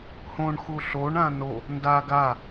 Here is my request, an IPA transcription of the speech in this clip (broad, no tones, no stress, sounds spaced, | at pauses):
h õ ɳ x u ɬ o ɳ ã n o | n d a ɡ a